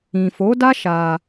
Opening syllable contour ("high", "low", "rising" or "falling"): low